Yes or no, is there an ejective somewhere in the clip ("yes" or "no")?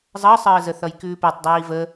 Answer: no